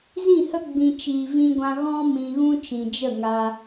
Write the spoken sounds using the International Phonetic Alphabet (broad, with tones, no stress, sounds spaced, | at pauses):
z ĩ˦˨ h ə˦ ɡ͡b ĩ˧ t͡ʃ iː˨ v ĩ˧ ɡʷ ã˧ ɣ ɔ̃˦ m ĩ˧ ɣ ũ˦ t͡ʃ ĩ˨ d͡ʒ ə˦˨ ŋ a˧